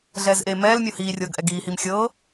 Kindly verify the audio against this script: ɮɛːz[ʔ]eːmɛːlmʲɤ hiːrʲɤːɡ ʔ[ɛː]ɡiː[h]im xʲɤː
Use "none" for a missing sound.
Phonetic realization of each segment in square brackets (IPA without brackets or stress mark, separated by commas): ʔ, ɛ, h